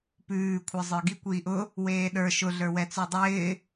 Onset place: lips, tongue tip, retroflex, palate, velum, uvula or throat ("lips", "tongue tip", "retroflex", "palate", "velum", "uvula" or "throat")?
lips